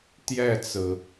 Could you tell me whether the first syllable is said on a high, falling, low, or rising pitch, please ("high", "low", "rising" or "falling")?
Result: falling